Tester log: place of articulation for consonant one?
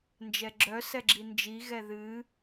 alveolar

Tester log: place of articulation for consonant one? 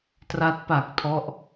alveolar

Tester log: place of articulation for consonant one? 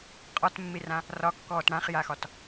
uvular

